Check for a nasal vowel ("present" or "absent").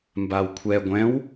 present